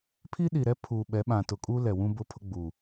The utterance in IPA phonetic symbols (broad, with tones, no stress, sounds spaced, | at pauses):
pʰ i˦ ɗ i˨ ɾ ɛ˦ pʰ u˨ ɓ ɛ˨˦ ɓ ã˨ t ʊ˨ kʼ u˦ l ɛ˨ w ũ˦ b ʊ˦ pʰ ʊ˦ ɡ͡b u˨